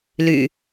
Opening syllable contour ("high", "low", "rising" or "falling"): low